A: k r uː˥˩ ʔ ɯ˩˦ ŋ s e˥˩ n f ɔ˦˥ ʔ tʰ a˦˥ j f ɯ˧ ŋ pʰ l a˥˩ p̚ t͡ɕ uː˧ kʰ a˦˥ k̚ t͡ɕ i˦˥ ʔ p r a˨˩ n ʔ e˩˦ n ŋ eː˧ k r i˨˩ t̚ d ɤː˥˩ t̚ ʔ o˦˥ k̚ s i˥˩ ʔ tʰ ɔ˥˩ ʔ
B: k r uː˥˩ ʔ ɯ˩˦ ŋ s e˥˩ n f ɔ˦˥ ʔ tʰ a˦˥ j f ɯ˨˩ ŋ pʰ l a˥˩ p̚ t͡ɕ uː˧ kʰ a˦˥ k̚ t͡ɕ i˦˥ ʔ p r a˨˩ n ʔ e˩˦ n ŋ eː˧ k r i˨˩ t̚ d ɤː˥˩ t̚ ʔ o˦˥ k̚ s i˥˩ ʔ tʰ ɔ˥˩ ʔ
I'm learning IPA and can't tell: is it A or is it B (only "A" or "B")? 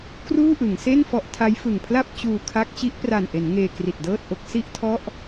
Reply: B